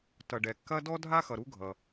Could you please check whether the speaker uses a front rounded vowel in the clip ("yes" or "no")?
no